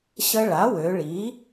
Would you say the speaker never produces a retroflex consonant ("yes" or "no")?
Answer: no